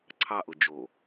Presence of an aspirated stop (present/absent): present